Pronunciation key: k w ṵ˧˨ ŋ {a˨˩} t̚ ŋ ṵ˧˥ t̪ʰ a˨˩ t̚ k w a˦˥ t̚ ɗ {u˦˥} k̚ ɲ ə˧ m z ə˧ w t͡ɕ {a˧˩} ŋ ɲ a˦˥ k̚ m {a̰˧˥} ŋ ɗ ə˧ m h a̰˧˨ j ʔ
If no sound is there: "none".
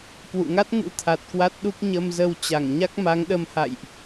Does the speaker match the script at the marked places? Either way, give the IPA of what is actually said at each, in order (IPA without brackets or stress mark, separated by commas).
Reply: a˦˥, u˦˥, a˧˩, a˨˦